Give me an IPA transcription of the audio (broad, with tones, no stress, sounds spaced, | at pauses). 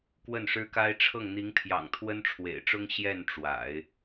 k w ə˥˩ n ʂ ɻ̩˥ k a˥ ɪ̯ ʈ͡ʂʰ ɤ˥˩ ŋ n̪ i˧˥ ŋ pʰ j ɑ̰˨˩ ŋ t̪ʰ w ə˥ n ʈ͡ʂʰ w ḛ˨˩ ɪ̯ ʈ͡ʂ ʊ˥ ŋ ɕ j ɛ˥˩ n ʈ͡ʂ w a̰˨˩˦ ɪ̯